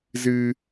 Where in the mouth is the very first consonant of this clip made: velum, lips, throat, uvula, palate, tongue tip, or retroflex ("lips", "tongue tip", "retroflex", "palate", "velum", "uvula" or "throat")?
tongue tip